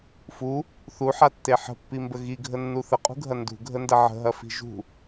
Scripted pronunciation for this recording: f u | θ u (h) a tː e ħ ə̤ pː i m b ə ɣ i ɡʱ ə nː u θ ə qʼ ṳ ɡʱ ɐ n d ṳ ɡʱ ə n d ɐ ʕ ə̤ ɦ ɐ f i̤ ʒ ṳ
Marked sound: incorrect: ħ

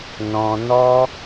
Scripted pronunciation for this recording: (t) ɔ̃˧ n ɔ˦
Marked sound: incorrect: n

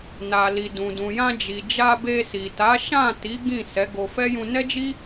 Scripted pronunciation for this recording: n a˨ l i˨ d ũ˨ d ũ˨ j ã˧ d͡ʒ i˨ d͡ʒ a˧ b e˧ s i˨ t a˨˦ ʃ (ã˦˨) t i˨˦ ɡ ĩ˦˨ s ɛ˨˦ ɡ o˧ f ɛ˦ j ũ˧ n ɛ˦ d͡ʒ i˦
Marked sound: correct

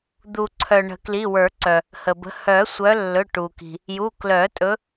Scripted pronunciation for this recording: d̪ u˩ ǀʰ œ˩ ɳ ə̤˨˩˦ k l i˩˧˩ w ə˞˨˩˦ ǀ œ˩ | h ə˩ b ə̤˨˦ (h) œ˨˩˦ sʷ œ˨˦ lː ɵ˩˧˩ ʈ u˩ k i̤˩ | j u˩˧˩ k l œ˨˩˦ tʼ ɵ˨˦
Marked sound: correct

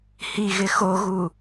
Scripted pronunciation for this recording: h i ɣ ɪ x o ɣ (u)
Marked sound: correct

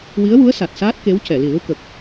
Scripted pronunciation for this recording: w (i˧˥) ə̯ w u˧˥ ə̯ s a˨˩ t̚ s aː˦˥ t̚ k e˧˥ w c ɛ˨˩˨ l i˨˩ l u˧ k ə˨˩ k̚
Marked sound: correct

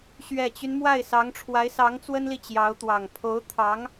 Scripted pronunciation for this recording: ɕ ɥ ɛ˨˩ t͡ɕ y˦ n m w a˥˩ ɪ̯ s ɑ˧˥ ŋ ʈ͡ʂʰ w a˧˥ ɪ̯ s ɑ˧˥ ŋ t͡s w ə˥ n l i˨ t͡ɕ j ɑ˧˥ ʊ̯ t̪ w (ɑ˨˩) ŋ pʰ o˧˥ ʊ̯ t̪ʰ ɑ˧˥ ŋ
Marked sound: correct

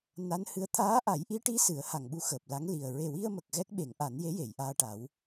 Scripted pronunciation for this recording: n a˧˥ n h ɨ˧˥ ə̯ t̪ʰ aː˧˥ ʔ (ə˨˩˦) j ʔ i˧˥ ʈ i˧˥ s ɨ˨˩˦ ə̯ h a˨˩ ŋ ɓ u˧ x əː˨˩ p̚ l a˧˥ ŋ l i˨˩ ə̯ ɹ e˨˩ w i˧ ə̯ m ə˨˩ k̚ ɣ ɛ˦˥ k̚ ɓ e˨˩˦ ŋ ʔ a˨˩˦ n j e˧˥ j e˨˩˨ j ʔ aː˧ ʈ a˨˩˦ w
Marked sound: incorrect: a˨˩˦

